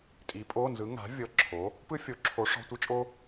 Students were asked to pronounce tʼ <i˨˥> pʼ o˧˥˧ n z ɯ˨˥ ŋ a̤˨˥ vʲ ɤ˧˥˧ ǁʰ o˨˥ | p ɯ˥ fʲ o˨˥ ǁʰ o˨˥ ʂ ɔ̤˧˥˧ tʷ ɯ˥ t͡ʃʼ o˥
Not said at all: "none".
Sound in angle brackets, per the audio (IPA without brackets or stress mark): i˨˥